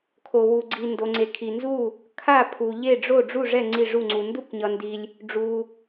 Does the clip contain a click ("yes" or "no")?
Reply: yes